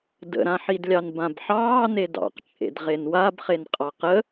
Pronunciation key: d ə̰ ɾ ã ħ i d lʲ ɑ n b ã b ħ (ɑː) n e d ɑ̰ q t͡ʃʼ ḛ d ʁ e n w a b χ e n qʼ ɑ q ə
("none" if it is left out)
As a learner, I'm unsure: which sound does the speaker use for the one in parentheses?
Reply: ɑː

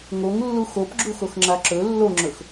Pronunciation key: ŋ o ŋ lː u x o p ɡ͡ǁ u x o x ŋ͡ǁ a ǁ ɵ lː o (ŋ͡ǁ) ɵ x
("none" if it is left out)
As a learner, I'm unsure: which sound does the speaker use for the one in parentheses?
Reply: ŋ͡ǁ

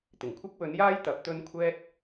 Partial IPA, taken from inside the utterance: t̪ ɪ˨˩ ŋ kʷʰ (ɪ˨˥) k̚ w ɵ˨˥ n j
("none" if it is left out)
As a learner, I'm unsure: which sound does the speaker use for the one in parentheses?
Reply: ɪ˥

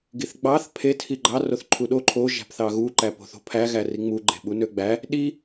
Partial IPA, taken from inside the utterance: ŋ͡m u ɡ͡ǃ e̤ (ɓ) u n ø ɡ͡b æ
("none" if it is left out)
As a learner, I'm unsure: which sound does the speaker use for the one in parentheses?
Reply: ɓ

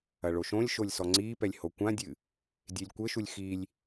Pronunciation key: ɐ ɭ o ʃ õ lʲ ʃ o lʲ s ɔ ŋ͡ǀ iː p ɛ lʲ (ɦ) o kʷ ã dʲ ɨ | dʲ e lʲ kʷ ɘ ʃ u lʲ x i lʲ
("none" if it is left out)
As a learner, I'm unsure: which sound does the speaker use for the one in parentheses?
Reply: h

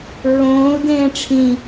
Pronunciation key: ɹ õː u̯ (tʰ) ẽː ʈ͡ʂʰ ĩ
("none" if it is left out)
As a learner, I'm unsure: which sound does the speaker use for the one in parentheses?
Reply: d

